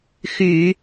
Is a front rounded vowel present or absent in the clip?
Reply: present